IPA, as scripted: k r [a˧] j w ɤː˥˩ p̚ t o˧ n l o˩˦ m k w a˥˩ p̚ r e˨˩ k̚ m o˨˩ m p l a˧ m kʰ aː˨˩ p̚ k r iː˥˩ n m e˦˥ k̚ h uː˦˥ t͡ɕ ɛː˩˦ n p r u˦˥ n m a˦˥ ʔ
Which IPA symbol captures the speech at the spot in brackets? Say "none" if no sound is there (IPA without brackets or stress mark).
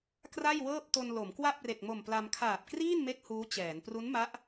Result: a˥˩